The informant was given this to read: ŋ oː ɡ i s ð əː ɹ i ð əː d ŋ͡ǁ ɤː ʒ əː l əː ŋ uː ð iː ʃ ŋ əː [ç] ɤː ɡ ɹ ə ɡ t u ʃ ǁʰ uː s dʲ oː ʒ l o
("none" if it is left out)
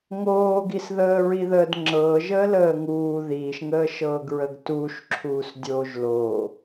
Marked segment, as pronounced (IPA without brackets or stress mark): ʃ